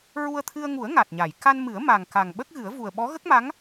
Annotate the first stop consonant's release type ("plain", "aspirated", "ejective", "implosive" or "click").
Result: aspirated